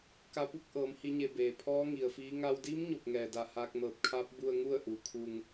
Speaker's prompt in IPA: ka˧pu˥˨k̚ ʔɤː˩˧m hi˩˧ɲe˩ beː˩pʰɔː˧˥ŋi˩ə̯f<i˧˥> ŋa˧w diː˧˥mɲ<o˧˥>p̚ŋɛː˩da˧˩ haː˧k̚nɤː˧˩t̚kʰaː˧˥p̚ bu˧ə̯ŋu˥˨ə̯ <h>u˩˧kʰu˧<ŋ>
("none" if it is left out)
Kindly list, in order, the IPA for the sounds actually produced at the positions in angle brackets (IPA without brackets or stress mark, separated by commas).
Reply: iː˧˥, o˧˩, ʔ, ŋ